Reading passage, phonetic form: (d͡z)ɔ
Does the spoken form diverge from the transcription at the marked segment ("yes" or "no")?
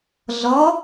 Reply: yes